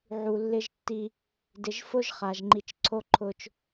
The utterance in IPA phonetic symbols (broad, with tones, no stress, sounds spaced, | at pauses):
ʕ u˨ lː ɪ˦ ʒ tː i˦ | d ɪ˨ ʒ f ʊ˦ ʒ χ a˨ ʒ ŋ͡ǃ i˨ t͡ʃ ǀʰ o˦ ǃʰ ʊ˦ t͡ʃ